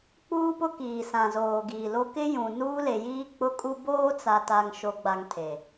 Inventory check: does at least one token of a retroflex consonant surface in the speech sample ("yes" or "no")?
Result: no